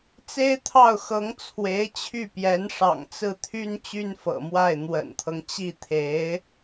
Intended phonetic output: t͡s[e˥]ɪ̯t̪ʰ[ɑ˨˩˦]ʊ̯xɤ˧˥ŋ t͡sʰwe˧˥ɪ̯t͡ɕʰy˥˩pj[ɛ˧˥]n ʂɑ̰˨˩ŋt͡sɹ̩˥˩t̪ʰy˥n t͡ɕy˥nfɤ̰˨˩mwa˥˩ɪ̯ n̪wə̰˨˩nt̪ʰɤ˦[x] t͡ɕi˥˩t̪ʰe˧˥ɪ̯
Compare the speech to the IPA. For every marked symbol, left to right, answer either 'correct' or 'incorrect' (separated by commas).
correct, incorrect, correct, incorrect